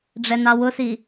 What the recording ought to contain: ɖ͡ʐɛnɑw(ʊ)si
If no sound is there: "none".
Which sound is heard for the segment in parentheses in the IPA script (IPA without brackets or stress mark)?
ʊ